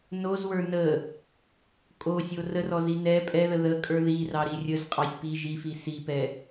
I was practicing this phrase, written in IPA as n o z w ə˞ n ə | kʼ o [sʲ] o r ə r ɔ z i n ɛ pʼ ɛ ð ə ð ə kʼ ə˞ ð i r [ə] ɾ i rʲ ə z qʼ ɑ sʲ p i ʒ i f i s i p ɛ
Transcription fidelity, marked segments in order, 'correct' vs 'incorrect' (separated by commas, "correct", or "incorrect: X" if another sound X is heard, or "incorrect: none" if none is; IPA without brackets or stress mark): correct, incorrect: ɑ